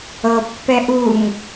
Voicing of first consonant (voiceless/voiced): voiceless